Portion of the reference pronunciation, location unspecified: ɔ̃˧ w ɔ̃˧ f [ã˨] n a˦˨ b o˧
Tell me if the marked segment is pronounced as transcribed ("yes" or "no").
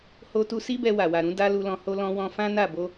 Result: no